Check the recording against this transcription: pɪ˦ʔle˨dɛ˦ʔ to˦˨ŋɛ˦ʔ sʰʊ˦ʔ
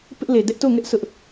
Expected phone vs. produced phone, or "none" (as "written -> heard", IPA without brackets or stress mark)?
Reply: none